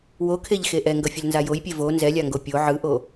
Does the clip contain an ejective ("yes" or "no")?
no